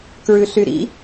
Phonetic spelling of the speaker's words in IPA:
k ɹ ʉ ɬ y ɾ ḭ

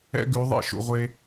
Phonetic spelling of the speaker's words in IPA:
ɛ̰˦ ɡ ʉ˨˦ ðˤ ḛ˦ ʃ ṵ˨ ʁʷ e˧

